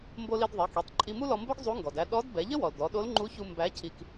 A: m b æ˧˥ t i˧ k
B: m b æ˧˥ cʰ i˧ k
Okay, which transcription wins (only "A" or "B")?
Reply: B